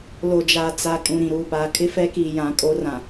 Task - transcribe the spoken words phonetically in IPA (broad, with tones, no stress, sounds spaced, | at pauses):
l o˨ d͡ʒ aː˨ t͡s a˨ kʼ ũ˨ ɾ ĩ˨ ɾ uː˨ p aː˨ kʰ ɪ˦ f ɛ˦ k iː˨ j ã˨˦ kʼ o˦ r ã˨